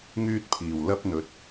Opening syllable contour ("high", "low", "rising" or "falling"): high